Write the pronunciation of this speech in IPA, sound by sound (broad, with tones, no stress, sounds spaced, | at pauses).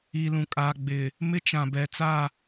i˨ l ũ˨ kʼ aː˨ ɡ͡b ɪ˨ | m ɪ˦ t͡ʃ ã˨ b ɛ˨ t͡s a˦˨